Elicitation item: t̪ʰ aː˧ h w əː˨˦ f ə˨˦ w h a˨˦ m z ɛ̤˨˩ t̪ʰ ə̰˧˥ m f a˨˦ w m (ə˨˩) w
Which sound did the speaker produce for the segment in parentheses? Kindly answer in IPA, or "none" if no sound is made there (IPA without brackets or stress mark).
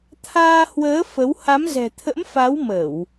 ə˧˩˨